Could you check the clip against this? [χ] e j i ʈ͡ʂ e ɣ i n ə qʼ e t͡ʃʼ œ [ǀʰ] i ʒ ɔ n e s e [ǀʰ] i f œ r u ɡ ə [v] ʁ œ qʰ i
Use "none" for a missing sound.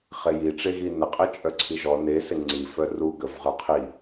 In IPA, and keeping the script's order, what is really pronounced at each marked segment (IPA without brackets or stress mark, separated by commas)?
χ, ǀʰ, ŋ͡ǀ, v